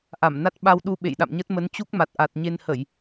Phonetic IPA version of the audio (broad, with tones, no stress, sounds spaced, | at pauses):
ʔ a˧˩ m n a˦˥ t̚ ɓ a˧ w ɗ u˧ ɓ ḛ˧˨ j ɗ a̰˧˨ m ɲ ə˦˥ t̚ m ə˨˦ n t͡ɕ u˦˥ k̚ m a˨˩ t̚ ʔ a˨˩ t̚ ɲ e˧ n h ə˧˩˨ j